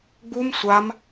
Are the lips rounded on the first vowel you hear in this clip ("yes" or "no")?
yes